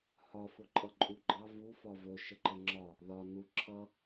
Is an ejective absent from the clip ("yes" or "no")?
no